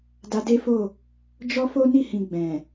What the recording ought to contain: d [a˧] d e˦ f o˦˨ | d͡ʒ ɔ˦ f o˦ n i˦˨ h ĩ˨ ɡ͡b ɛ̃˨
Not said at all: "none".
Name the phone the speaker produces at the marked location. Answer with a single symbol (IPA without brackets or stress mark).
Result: a˧